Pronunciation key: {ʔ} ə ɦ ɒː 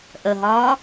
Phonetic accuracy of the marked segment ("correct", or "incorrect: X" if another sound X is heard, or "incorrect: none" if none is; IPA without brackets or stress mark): correct